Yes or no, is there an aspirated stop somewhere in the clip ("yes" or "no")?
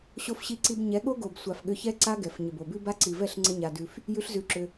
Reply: no